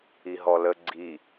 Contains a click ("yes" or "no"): yes